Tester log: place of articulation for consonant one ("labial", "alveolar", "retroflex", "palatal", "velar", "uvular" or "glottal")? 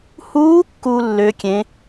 glottal